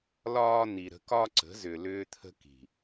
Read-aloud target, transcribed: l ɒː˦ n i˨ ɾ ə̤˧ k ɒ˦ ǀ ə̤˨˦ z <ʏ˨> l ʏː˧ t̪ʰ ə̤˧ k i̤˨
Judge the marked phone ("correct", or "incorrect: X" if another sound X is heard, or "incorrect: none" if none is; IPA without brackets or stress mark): correct